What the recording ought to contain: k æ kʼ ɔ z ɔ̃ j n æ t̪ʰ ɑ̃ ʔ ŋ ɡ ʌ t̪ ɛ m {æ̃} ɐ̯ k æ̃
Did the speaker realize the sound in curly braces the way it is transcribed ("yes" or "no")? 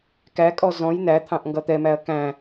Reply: no